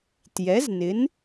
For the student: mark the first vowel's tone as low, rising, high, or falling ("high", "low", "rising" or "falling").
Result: rising